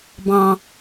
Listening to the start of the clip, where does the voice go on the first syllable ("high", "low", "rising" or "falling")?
high